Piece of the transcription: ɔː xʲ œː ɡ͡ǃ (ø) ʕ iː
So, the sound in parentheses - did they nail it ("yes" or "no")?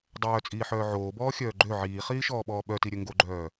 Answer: yes